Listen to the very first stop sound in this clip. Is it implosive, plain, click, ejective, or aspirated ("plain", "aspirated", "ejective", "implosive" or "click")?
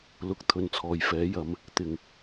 plain